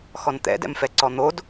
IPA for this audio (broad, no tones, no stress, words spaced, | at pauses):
xɔnt̪ɛ̰dɛ̰mfɛ ǀɔn̪od